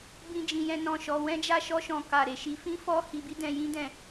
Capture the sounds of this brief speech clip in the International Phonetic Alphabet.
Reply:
b ĩ˧ d͡ʒ ĩ˨ j ɛ̃˧ n ɔ̃˨ ʃ ɔ˨ w ɛ̃˧ d͡ʒ a˧ ʃ ɔ˧ ʃ ɔ̃˨ k a˨ ɾ e˨ ʃ i˧ f ĩ˦ f ɔ˦ h i˧ b i˦ d ɛ̃˧ j ĩ˦ d ɛ̃˧

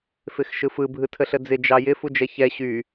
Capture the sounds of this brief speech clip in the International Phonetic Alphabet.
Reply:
f ɪ x ʃ ɯ f ɯ bʱ ɯ tʰ ə ɬ ə d͡z ɪ d͡ʒ ɑ j ɪ f u d͡ʒ ɛ ç ɛ ɕ y

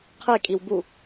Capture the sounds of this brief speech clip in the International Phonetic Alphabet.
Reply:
qʰ e kʼ i w b u

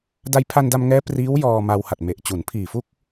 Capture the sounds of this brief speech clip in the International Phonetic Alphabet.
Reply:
d a˧ j pʰ a˧ n d a˧ m ŋ ɛː˦˥ p r iː˦˥ w j ɔː˧ m a˧ w h a˨˩ t̚ m e˨˩ ʔ t͡ɕ u˩˦ n pʰ iː˨˩ f u˥˩ k̚

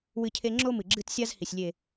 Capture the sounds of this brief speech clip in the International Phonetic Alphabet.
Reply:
w ɨ˦ cʰ e˦ ŋ͡ǁ o˦ m ɨ˨ ɡ͡ǁ ɨ˦ t sʲ a˦ z h i˨ sʲ lʲ e˨

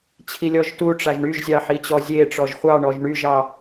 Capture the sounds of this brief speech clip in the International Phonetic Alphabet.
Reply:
t͡ɕʰ i lʲ ɔ ʒ t u ʈ͡ʂ a ʒ ɳ y ʒ zʲ ɑ ħ i t͡ɕ ɔ zʲ e ʈ͡ʂ ɔ ʒ χʷ ɑ ɳ ɔ ʒ ɳ y ʒ ɑ

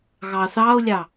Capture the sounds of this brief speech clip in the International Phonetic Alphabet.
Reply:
ɣ ɑ θ ɑ ʊ̯ lʲ ɑ

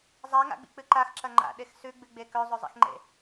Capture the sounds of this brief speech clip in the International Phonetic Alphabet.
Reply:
zˤ a ŋ a̰ ɡ͡b ḭ k͡p ɨ ǃ a x ǁ ɐ ŋ͡ǃ a̰ ɗ e x s ʉ ɡ͡b ɨ ɡ͡b e k ɵ zˤ ɵ zˤ ḭ x ŋ͡ǃ ḛ

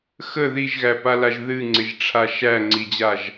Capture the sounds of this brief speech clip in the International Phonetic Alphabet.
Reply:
x ə ð i ʒ ɣ æ p a l a ʒ ð ɨ ŋ͡ǀ ɪ ʒ ʈ͡ʂʰ a ʃ æ ŋ͡ǀ i d͡ʑ a ʒ

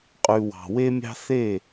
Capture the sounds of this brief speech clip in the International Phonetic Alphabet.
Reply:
qʼ ʉ˨ w ɑ̤˨ w e˦ mʲ ɑ̤˦ θ e˦˨

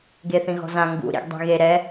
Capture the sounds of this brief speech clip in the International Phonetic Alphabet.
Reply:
ɡ e θ ĩ ɣ ɔ̤ z ã ŋ ɡ ṵ ɾ ḭ ɡ dˤ i̤ ɣ e ɾ ɛ

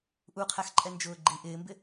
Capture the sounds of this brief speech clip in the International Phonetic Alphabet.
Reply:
ʔ u qʰ æ x ǃʼ ɛ n d͡ʒ ʊː ɡ͡ǃ i ʔ ɪː m b ɪ

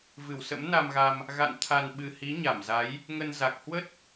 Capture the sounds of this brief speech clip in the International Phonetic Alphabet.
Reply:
v ɨ˧˩ w s ə̰˧˥ m n a˧ m ɣ a˧ m | ɣ a̰˧˨ n t̪ʰ a˨˩ n ɓ ɨ˨˩ h i˨˦ ɲ a˧˩ m z a˨˦ j | ŋ ə˧ n z a˨˩ k̚ h w ə˦˥ t̚

